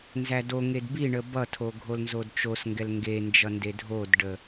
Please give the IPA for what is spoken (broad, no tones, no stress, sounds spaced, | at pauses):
n z æ d o ŋ e d b i ɳ ə b ʌ tʰ o ɡʱ o l n z o d t͡ʃ o s ŋ ɡ ɛ l ŋ ɡ e n d͡ʒ ʌ n d e dʱ o d ɖ ə